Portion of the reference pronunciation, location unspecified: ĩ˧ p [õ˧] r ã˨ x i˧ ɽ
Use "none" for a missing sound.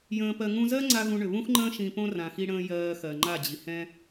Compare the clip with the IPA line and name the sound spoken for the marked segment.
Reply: õ˦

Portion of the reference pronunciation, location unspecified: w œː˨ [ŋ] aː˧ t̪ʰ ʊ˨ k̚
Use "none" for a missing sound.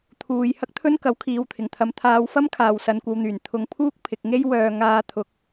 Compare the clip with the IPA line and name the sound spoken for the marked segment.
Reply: ŋ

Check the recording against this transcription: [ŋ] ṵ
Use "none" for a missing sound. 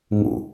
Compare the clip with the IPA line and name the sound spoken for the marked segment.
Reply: ŋ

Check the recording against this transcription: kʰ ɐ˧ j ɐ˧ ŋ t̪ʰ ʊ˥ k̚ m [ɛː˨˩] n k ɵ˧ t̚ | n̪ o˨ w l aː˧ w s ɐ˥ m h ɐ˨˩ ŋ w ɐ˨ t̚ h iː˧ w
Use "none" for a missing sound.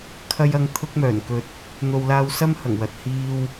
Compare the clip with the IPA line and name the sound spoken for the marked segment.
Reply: œː˨˩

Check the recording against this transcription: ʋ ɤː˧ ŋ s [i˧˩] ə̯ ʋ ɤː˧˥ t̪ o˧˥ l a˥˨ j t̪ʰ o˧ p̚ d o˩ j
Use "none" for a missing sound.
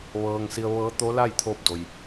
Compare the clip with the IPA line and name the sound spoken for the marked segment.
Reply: i˧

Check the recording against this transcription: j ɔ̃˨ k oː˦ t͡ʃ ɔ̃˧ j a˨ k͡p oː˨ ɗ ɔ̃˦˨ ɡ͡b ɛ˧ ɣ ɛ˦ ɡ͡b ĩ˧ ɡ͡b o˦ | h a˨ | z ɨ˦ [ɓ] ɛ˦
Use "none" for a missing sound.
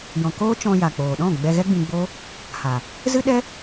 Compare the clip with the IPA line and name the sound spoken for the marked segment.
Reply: ɗ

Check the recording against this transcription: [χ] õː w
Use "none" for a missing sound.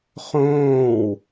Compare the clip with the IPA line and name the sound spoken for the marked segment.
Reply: χ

